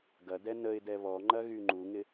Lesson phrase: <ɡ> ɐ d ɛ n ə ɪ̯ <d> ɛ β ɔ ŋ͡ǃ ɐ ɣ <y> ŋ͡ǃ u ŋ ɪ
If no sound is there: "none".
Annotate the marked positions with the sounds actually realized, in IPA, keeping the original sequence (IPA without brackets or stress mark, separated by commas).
ɡ, d, y